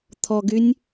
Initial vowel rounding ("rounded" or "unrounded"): rounded